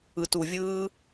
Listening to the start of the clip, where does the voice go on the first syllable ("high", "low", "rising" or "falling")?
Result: low